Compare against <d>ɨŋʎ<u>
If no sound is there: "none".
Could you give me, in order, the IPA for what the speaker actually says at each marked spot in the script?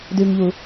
d, u

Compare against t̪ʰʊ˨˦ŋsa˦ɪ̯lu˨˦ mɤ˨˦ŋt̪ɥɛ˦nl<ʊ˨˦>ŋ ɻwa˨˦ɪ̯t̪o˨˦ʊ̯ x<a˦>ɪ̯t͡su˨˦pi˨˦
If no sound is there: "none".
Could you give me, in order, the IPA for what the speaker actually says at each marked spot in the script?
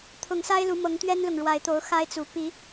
ʊ˨, a˦

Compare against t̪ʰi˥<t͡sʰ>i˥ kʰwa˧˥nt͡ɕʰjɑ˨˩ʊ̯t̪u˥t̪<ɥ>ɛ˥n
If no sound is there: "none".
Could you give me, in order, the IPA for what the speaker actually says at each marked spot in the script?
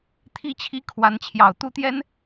t͡ɕʰ, j

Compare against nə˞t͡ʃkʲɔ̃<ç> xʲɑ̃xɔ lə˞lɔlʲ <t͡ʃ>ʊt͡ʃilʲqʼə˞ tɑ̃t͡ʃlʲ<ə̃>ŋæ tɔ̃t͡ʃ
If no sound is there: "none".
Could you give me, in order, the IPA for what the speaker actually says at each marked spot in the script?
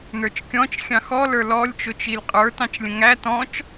t͡ʃ, t͡ʃ, ə̃

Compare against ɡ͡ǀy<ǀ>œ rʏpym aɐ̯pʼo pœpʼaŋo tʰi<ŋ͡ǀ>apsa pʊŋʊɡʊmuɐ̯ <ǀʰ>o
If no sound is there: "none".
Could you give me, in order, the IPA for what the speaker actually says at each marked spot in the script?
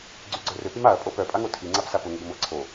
ɡ͡ǀ, ŋ͡ǀ, ǀʰ

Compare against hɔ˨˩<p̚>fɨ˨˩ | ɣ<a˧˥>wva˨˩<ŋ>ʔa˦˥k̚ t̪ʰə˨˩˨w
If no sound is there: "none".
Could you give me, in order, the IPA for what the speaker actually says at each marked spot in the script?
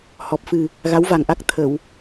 p̚, a˧˥, ŋ

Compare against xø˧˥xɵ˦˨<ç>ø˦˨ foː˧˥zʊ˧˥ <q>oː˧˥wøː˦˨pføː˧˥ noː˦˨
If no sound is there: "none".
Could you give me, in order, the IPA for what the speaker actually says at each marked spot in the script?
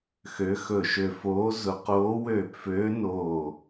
ʃ, q

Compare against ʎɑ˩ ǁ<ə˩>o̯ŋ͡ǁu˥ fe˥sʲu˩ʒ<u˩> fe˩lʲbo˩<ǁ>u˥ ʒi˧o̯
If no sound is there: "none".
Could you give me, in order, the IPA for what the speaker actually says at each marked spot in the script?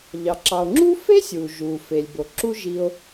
ɑ˩, u˩, ǁ

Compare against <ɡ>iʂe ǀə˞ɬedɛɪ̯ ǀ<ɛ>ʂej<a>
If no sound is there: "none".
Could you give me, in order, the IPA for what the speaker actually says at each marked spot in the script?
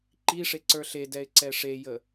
ǃ, ɛ, ə

